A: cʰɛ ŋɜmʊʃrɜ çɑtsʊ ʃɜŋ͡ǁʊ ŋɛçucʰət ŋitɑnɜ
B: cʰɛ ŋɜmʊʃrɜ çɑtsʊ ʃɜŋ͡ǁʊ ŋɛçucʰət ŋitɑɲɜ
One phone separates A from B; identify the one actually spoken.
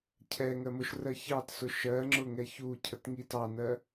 A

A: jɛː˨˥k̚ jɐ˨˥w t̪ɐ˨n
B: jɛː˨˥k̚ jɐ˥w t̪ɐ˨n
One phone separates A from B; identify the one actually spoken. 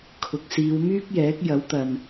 A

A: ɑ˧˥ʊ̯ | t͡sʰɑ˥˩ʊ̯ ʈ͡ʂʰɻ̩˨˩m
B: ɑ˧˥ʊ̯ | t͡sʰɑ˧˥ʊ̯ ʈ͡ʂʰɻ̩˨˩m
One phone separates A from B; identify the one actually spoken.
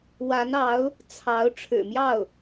B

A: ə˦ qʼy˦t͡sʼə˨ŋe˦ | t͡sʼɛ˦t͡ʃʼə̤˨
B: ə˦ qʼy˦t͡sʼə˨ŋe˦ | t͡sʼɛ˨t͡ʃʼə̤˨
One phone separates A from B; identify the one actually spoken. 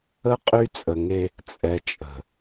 B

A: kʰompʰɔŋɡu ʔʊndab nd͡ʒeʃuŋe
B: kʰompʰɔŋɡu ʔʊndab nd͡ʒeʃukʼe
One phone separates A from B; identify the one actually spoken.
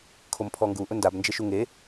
A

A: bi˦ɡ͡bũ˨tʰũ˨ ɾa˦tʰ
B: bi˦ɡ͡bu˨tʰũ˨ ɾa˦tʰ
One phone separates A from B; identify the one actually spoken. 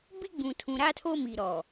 A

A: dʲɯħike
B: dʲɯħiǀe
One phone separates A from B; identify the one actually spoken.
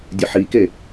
A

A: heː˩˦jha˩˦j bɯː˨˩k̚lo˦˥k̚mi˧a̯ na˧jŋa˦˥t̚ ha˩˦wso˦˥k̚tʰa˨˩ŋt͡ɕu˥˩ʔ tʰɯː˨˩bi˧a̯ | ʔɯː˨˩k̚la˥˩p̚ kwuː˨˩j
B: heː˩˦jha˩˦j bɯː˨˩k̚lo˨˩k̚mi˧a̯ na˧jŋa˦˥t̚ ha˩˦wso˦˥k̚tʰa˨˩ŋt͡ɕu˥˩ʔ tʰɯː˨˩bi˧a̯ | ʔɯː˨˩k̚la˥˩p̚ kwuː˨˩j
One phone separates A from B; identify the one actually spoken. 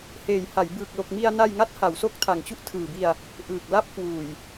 B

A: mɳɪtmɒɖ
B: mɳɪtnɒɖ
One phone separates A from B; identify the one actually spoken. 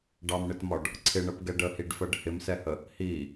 A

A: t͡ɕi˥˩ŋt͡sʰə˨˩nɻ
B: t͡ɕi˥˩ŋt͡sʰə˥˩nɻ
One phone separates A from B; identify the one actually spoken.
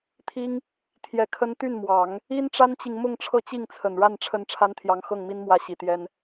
A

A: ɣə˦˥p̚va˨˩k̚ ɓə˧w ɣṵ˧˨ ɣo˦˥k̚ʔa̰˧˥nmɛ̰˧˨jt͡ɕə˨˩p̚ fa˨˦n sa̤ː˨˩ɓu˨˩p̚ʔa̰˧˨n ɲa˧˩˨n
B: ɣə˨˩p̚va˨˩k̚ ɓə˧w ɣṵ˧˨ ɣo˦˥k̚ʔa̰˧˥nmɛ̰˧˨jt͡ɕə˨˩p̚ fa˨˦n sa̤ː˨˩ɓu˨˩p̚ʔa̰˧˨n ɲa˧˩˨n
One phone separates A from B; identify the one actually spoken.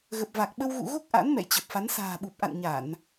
B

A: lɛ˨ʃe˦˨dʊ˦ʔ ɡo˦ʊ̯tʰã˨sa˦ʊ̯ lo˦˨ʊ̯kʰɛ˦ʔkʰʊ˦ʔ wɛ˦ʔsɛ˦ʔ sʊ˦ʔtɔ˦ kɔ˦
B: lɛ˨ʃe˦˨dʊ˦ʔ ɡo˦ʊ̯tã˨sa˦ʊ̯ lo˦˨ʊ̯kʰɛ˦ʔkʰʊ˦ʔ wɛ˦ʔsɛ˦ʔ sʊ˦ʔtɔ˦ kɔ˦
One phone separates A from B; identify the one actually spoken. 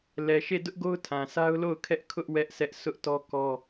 A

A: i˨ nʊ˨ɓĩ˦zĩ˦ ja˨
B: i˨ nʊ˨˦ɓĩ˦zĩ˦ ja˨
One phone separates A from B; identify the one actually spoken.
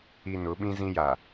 B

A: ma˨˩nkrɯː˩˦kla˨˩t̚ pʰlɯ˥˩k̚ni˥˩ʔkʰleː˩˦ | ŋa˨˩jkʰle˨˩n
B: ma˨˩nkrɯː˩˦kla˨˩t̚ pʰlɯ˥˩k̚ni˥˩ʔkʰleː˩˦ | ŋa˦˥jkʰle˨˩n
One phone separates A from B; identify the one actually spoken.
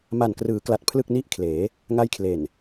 B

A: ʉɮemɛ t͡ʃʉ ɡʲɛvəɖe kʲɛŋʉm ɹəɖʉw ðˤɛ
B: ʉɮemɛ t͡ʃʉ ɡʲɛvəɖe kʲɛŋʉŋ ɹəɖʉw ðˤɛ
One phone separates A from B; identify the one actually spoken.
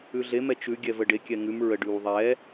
A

